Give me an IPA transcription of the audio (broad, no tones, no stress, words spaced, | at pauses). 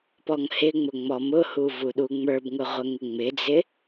pɔŋhɪŋ͡mʊ ŋ͡mɔmʊhu vuɗuŋ͡mə˞bŋʊ ʁʷəŋɪŋ͡mɪd͡zɪ